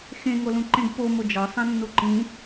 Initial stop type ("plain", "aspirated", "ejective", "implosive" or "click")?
click